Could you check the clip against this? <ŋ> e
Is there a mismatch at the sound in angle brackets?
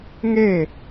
no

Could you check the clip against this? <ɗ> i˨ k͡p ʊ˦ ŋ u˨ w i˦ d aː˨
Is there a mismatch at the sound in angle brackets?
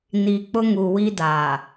yes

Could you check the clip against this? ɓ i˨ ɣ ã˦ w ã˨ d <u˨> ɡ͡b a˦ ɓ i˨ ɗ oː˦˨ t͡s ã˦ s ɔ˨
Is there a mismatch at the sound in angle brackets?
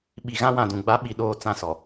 yes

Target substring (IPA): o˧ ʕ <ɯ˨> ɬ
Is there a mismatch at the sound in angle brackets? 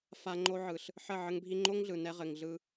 no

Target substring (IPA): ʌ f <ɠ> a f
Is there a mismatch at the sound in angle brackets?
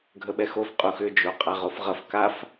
yes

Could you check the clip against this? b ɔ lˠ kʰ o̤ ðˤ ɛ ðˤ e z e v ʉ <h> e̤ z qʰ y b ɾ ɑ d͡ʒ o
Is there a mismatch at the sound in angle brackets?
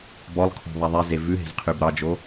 yes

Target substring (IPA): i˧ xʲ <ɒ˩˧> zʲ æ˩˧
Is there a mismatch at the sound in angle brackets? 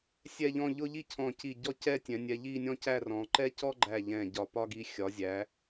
no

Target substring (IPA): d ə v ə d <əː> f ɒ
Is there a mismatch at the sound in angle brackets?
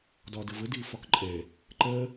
yes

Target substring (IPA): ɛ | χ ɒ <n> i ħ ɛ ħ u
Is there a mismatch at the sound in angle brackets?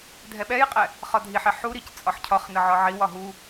yes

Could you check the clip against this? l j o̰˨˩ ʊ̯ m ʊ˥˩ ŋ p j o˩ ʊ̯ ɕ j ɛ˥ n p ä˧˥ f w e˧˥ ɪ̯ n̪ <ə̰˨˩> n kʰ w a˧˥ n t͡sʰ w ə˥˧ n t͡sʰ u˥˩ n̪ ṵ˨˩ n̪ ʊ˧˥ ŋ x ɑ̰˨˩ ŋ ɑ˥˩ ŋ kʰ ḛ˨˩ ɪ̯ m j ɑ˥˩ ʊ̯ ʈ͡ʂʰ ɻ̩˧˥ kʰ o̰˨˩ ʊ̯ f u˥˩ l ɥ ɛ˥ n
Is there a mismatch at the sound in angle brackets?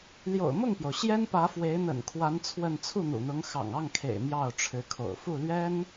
no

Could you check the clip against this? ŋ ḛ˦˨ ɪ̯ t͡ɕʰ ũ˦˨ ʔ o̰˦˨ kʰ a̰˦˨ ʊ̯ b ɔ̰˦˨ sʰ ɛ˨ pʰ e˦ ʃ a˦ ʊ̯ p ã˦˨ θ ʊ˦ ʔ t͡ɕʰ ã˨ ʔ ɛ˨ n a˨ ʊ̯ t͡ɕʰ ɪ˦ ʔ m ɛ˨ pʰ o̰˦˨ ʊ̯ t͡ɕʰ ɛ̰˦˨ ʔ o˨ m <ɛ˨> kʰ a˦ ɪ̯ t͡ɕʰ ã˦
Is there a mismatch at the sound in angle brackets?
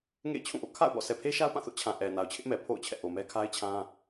yes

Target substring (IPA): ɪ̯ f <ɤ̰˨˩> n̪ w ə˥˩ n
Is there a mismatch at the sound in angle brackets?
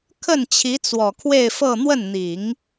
yes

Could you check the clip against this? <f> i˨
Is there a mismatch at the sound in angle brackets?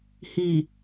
yes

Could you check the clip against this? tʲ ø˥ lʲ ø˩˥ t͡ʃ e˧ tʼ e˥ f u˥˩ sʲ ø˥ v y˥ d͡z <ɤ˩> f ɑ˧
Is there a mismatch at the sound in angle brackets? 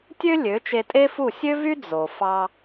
yes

